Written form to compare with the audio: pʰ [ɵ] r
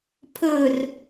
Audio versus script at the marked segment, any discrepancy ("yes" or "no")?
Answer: no